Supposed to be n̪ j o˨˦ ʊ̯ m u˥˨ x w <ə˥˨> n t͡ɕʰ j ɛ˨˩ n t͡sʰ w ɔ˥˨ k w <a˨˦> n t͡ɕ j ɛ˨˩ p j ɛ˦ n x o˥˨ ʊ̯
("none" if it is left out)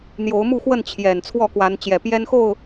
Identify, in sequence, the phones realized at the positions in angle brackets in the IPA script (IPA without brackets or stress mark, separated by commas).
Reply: ə˥˨, a˨˦